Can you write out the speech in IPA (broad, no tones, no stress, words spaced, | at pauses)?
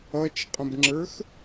ʌt͡ʃqʼə̃bŋ͡ǁə˞x